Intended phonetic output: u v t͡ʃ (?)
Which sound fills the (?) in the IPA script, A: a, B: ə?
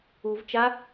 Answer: A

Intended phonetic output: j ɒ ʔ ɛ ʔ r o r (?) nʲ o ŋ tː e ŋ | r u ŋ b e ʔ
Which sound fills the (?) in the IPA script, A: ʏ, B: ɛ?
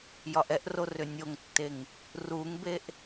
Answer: A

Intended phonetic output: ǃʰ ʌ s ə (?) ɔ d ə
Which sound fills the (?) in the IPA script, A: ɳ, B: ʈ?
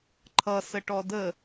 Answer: B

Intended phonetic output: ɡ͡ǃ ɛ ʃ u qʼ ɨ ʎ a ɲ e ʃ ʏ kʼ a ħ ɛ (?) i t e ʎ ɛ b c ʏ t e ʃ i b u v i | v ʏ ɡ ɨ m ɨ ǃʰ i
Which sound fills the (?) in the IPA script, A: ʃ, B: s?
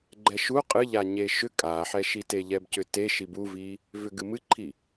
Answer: A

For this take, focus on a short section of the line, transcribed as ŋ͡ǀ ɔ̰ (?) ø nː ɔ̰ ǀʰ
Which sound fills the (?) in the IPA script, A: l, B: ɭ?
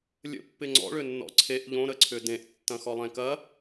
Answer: B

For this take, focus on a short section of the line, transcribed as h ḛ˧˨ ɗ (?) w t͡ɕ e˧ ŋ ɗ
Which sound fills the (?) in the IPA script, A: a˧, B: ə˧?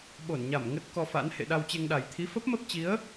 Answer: A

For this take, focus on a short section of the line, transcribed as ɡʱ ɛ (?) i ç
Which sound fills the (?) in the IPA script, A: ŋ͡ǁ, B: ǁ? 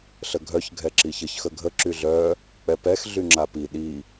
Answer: B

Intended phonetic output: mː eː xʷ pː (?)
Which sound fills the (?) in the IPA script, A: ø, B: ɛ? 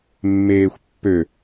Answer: A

